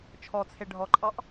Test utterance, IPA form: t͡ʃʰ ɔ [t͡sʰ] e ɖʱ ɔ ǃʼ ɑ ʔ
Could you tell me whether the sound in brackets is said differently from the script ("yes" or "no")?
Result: no